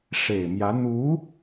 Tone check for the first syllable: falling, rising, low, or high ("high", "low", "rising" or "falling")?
low